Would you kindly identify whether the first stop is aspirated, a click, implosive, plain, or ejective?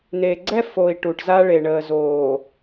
click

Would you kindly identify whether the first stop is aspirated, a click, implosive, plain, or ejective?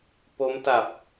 plain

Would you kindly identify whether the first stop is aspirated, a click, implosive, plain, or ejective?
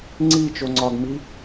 click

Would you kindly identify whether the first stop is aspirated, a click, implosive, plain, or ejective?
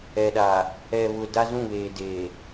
implosive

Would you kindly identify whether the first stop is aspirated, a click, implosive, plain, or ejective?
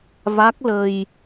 plain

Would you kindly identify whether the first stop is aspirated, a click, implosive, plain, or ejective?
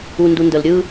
plain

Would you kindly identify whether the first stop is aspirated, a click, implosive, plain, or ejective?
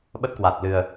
implosive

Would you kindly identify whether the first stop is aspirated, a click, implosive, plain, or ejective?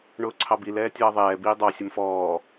click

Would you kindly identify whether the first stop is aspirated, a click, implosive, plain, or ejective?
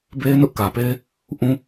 plain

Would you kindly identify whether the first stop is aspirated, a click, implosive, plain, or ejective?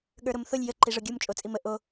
implosive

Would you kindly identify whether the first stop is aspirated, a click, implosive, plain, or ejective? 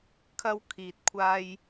aspirated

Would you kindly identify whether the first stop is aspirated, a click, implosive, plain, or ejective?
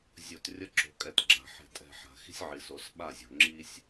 plain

